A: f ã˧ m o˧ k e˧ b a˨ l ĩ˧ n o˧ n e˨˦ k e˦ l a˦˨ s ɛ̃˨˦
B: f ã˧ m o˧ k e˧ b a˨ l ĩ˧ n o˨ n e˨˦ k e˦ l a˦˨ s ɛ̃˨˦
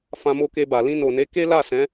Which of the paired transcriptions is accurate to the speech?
B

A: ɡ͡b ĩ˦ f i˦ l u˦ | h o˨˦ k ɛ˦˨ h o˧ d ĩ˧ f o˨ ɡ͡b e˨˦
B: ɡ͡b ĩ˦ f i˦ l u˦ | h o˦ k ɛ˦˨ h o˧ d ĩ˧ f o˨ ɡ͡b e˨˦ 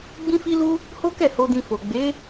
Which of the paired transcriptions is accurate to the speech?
B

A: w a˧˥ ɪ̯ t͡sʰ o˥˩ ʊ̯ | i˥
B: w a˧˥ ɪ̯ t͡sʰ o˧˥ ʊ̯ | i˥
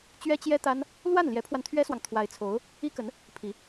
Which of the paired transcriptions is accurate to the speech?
B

